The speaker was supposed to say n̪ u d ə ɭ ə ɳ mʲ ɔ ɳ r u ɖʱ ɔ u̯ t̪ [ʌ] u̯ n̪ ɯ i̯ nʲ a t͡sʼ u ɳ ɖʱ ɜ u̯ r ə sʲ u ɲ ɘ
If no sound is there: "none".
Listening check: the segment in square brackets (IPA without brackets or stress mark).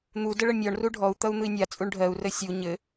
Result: ʌ